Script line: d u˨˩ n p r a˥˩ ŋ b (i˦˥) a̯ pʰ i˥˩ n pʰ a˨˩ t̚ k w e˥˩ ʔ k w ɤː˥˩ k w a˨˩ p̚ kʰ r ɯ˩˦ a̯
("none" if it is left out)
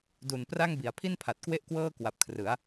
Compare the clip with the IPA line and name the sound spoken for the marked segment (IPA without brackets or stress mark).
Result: i˩˦